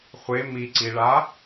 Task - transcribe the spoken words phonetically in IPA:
χʷe miǀiɭa

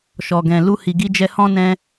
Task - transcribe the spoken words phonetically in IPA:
ʃɔ˨ɡɛ̃˨ lu˧ hi˨ɡi˧d͡ʒɛ˧ hɔ̃˦nɛ̃˦

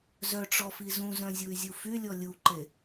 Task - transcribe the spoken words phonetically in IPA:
zœʈ͡ʂɔfi zũzœ̃zʲuy̯zʲu fylʲɔ lʲuǃe

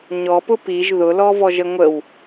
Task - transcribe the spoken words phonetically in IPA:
ɲɔpʊ piʒ ðʊlɔvɔʒə ŋʷəw

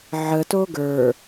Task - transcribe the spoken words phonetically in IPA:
ʕəto ɡə˞

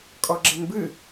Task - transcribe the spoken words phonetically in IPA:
kʼɔɡ͡ǁenbɨ

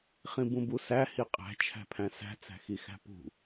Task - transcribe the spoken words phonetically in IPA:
χĩbũbusæ hiqʼæ̤ t͡ʃʰæ̤pʰæ̃sæ̤ t͡sæ̤xixæ̤pṳ

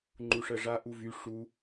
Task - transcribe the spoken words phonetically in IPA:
ŋ͡ǃuʂɜʐa ʔuvy ʂu

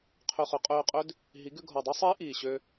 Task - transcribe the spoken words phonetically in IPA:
qʰø˧χɵ˩˥ qʼøː˧qʼø˦˥d | ɦi˩˥ ɡʉ˧ɡʱɔ˨˩dˤu˦˥sˤiː˦˥ ʔiː˨˩ɕø˧

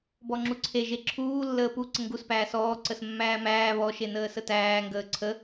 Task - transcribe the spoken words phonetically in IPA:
bɔŋ͡ǁuǀʰe ʒeǁʰuː lːəːpu ǀəŋɡus pæːsɔː ǀəsmːæːmæː βɔ ʃenəːsətæː ŋɡəːǀʰə

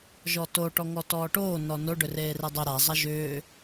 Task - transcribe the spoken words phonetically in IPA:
ʒɔto ʈɔŋɔtɔːʈoː nɔno ɖʏreːredˤʏ ɾa zˤaʒʏː

